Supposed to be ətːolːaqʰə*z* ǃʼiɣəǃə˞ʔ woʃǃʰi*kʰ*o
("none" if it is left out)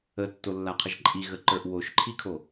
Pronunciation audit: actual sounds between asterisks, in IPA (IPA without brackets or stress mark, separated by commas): ʒ, kʰ